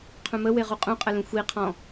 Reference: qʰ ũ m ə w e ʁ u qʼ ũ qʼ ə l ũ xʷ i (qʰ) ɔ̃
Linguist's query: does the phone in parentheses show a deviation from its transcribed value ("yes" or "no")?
no